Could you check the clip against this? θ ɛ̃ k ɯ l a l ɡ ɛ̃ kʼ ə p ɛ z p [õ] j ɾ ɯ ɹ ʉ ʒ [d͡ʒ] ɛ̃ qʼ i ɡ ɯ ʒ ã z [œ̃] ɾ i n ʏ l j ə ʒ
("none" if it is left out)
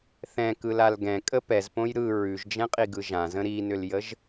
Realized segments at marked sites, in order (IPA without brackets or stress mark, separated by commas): õ, d͡ʒ, ə̃